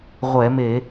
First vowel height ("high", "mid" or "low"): mid